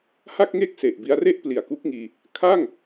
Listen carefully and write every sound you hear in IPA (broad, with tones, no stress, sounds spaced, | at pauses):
h a˥˩ k̚ ŋ e˥˩ k̚ s e˨˩ ʔ b i˧ a̯ r e˥˩ ʔ p l i˨˩ a̯ k u˦˥ k̚ ŋ iː˧ | kʰ a˥˩ ŋ